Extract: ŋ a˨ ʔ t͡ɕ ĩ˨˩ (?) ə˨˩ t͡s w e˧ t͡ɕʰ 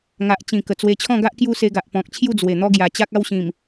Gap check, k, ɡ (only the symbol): k